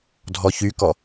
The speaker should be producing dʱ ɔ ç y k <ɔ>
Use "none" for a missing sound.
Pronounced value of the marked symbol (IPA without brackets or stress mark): ɔ